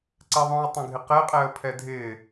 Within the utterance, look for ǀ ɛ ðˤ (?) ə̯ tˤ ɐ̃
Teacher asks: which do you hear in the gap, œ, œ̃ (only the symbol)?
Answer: œ̃